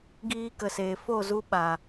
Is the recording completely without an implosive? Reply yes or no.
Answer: no